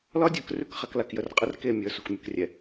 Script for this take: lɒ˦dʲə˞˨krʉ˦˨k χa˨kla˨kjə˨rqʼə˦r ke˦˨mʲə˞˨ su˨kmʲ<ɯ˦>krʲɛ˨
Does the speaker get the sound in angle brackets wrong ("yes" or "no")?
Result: yes